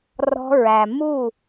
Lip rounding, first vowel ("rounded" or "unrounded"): rounded